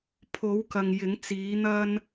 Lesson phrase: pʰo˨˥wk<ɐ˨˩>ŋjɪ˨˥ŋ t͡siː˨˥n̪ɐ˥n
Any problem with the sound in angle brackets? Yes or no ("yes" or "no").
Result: yes